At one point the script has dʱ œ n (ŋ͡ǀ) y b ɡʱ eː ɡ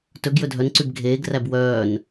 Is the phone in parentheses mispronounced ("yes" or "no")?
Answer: yes